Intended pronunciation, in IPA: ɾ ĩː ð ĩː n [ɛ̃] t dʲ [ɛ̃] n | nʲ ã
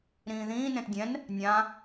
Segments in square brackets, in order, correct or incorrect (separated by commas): incorrect, correct